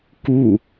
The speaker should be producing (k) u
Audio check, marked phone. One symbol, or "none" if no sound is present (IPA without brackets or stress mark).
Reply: k